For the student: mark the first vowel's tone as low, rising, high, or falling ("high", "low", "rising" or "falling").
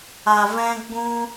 low